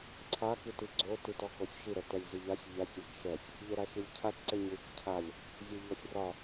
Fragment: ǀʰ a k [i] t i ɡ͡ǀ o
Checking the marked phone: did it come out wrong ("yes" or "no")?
no